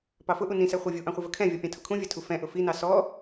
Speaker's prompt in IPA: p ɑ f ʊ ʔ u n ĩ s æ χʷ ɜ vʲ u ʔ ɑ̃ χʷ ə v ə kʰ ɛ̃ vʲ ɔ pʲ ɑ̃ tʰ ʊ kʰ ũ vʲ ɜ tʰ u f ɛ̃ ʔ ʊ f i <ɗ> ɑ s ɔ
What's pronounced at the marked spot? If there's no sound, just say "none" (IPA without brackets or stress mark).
n